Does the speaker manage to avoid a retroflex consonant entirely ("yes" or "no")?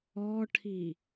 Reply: no